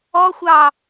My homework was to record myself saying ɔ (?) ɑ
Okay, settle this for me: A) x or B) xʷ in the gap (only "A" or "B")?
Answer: B